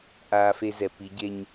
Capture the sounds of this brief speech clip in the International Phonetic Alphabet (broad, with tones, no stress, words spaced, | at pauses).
ʔaː˦fe˦zɛ˨ pi˨˦ɟe˦ɲ